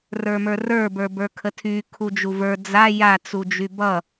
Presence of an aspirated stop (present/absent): present